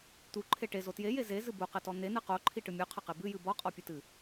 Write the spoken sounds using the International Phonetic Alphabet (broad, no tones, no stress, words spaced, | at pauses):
t̪uǃʰe ʈezo tjeje zezɨ buqɘtɔ n̪enɨ qoǃʰiʈɨ mʲuqʰɐqe bɨjɨ bɔqʼɔpʲɘtɨ